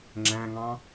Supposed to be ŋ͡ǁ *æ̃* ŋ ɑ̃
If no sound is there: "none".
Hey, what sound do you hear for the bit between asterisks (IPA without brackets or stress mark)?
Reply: æ̃